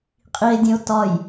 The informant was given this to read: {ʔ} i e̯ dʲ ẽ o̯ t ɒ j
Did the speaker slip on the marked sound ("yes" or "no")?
yes